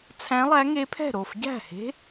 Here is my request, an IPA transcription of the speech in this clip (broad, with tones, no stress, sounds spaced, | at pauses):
t͡sʰ æ̃˧˥ lˠ æ˧˥ ŋ e˧˥ pʰ ɛ̤˥˩ ɾ o˥˩ f ɟ æ̤˥˩ h e̤˧˥